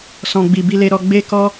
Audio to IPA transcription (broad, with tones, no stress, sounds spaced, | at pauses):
s ɔ̃˧ ɡ͡b i˧ b i˧ l e˧ ɾ ɔ˧ ɡ͡b e˦ k ɔ˦